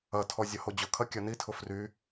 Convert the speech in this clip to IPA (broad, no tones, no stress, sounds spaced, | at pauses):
ɐ tʰ ɔ zʲ ɐ h o d͡ʑ ʊ kʰ ɐ kʲ ɐ n i tʰ ʊ f r y